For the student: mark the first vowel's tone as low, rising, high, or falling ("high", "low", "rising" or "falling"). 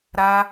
high